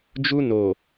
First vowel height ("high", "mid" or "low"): high